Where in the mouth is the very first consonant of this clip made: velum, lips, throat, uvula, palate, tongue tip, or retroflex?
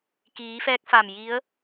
velum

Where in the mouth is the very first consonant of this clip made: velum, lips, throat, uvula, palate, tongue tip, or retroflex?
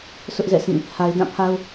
tongue tip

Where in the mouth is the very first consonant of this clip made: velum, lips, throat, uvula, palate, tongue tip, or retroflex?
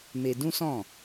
lips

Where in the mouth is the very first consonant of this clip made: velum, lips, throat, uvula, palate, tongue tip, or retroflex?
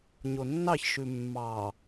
palate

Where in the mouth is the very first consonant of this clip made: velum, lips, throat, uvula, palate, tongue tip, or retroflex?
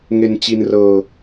velum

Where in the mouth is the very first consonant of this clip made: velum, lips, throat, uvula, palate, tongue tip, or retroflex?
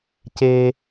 palate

